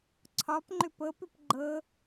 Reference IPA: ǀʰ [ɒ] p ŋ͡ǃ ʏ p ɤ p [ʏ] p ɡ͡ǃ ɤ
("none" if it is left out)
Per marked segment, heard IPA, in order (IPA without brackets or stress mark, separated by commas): ɒ, ʏ